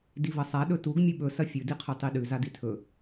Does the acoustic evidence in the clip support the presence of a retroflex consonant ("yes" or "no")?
no